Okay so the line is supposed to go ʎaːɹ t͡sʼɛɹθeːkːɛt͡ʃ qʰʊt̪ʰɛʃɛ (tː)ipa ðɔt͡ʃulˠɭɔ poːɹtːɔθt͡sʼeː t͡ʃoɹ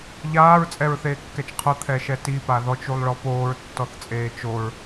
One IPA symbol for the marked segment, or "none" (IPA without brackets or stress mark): t